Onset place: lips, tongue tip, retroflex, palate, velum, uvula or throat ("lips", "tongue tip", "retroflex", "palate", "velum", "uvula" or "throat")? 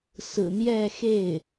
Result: tongue tip